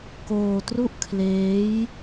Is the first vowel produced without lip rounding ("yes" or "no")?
no